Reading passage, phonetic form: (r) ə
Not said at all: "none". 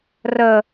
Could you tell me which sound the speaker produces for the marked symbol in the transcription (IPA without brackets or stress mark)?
r